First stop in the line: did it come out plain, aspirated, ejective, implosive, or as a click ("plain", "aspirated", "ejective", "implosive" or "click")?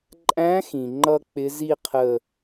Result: click